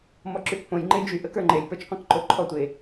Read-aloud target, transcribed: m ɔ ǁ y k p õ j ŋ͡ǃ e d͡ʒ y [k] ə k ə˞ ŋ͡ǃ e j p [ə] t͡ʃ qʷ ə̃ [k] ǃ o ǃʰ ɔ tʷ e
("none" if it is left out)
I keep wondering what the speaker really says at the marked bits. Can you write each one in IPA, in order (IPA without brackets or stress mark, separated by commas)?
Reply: ʔ, ə˞, k